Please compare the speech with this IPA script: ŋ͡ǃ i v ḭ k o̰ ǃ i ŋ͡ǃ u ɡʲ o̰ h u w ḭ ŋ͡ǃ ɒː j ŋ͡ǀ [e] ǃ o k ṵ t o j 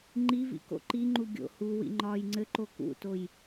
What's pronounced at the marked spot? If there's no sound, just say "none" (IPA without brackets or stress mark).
ɘ